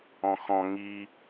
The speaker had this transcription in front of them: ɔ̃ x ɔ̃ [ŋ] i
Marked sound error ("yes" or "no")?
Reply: no